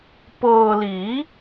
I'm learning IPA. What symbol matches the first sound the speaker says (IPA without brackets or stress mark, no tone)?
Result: p